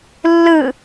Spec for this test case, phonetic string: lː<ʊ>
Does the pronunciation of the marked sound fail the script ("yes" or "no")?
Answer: yes